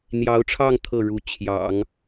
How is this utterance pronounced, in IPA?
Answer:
n̪ j ɑ˧˥ ʊ̯ ʈ͡ʂʰ ɑ˥˧ ŋ t̪ʰ ɤ˥˩ ɻ u˧˥ t͡ɕʰ j ɑ̰˨˩˦ ŋ

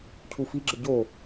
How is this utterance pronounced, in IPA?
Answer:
cʰ u f i ɡ͡ǁ ə ɟ o

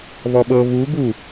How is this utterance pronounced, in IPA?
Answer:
β ɔ ɓ ɤ β u ɡ u

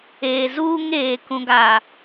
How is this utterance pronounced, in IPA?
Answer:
eː˨ z uː˦ ŋ eː˨ k ũ˨ ɡ a˨

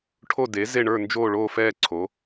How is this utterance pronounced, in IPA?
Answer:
ʈʰ o˥˨ d e˩˥ z e˥˨ ɳ ə˞˥˨ n d͡ʒ oː˥˨ ɭ oː˥˨ f ɛː˥˨ ǀʰ o˩˥

